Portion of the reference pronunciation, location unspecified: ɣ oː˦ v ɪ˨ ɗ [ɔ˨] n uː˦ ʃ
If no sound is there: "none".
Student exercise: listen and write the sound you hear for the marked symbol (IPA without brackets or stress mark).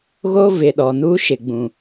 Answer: ɔ˨